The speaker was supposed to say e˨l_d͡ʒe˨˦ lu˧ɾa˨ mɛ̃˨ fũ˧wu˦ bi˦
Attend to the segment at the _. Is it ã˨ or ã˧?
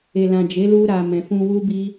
ã˨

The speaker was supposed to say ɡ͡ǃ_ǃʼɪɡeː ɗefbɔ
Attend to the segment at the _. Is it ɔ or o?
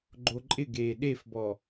o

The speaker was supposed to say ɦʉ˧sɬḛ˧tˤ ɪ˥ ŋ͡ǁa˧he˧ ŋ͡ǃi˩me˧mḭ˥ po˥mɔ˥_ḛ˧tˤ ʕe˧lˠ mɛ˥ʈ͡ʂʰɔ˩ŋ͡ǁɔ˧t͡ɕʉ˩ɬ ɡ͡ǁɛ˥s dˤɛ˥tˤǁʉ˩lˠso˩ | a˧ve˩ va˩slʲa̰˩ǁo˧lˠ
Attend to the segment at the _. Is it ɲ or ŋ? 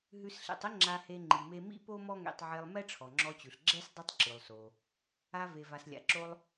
ŋ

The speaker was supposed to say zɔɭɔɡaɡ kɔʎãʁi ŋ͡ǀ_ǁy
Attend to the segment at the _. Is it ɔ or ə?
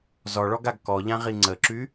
ə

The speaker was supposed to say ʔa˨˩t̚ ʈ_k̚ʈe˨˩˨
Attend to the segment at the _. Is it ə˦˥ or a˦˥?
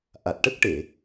ə˦˥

